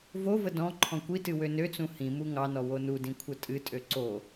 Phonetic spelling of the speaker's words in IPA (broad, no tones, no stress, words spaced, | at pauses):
vovə dɔ̃ ǃʰɔ̃kʷitɨ wønøt͡sũ hĩmu ŋɑnɔ wonudĩ kʷʰətʼɨtʼø ǀo